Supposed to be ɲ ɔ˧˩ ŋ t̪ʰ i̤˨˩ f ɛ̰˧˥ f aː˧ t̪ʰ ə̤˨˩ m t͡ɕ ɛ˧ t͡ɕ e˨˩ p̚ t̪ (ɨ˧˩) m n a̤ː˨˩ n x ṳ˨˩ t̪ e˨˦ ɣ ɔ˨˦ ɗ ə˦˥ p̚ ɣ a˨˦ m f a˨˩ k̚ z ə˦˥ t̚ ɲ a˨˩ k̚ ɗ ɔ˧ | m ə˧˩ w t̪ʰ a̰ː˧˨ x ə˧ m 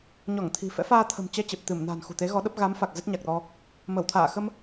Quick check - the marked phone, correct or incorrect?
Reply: correct